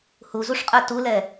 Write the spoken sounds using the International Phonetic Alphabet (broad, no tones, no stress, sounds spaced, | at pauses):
h u z u ʂ qʼ ə˞ t u l ɛ